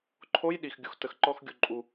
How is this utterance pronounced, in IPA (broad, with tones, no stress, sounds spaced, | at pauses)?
ǃʰ o˧˥˧ j ɗ i˩ x ɡʲ u˩ x t ə˩ x ǃ ɔ˧˥˧ x ɡʲ u˩ ǃʼ u˩